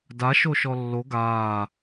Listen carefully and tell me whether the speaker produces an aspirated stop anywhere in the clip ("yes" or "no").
no